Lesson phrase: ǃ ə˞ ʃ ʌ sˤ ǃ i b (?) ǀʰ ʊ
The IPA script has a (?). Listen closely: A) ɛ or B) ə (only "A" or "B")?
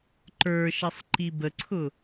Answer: B